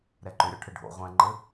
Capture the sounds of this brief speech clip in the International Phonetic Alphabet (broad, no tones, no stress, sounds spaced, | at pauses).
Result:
ɾ ɛ ǃ ʏ ɾʲ ɔ ʈʰ ɘ ɖʱ o̰ ʁʷ ɛ̃ ŋ͡ǃ ɘ